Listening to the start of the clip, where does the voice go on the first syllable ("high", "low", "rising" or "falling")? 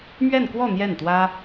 falling